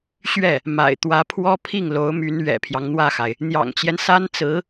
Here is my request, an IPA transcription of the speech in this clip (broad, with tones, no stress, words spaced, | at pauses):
ɕɥɛ˥˩ | ma̰˨˩ɪ̯t̪wä˧˥pʰwɔ˥ pʰi˥˩ŋlo˧˥ʊ̯my˧˥n ɥɛ̰˨˩pʰjɑ˦ŋn̪wä˥˩xa˩ɪ̯ | n̪jɑ̰˨˩ŋt͡ɕjɛ˦n sa˥nt͡sɹ̩˧˥